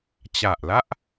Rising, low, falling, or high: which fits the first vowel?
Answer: low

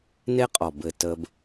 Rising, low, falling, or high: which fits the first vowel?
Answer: high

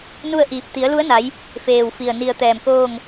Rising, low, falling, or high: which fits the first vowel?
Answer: falling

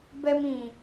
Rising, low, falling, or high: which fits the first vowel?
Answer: high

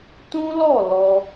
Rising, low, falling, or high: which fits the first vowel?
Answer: high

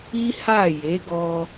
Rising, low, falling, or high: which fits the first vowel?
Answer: high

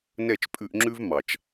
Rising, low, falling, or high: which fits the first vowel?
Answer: falling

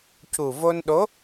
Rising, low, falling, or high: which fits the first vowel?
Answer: low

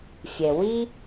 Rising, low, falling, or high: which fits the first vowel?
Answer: low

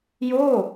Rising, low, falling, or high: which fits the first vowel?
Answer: falling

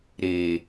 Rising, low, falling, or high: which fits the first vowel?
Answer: low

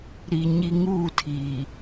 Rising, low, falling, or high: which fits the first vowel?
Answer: low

